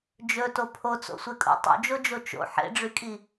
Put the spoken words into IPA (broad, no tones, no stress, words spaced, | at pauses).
d͡ʒɵto pʰot͡so̰sʷekʼo̰ tˤo̰d͡ʒod͡ʒo t͡ʃo̰ ħḛɖ͡ʐykʼi